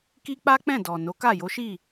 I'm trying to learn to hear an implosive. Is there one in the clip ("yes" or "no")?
no